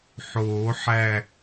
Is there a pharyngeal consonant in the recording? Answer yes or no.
yes